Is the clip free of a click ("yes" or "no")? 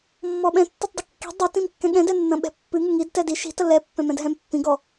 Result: yes